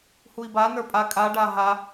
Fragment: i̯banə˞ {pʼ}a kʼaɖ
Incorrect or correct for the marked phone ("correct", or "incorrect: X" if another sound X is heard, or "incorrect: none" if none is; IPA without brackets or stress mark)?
correct